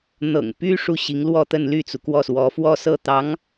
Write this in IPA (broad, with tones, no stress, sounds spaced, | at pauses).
n̪ ɤ̰˨˩ ŋ p y˥ ʂ u˥˩ ɕ i˧˥ ŋ l w ɔ˥˧ t̪ ə˥˧ n l y˥˩ t͡s u˩ k w ɔ˥˩ s w ɔ˧˥ f w ɔ˥ s ɤ˥˩ t̪ ɑ˧˥ ŋ